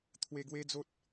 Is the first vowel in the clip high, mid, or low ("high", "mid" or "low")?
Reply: mid